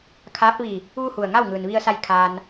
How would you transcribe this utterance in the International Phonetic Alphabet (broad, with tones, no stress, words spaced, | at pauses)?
kʰaː˧˥p̚ʋi˧˩ | ʋu˥˨hu˧˩ə̯ŋa˥˨wŋɯː˩n ʋi˧ə̯sa˧j kʰaː˧n